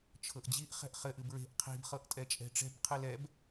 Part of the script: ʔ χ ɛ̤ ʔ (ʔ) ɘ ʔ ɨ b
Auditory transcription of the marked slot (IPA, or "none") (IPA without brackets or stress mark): χ